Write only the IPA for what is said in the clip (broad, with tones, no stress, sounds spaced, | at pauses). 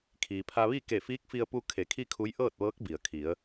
kʰ iː˩ pʰ a˧ ʋ i˥˨ k e˧˩ f iː˧˥ k̚ f i˧ ə̯ p u˧ kʰ e˩˧ kʰ i˥˨ kʰ u˧˥ j ʔ ɤː˥˨ t̚ ʋ ɤː˧˥ k̚ b i˩ ə̯ kʰ i˩˧ ə̯